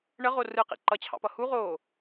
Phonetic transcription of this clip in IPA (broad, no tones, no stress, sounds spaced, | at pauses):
ɳ ə ʁ o r ɯ q ḭ ǃ ʌ t͡ɕʰ ɑ̰ p ʌ h u ʁ oː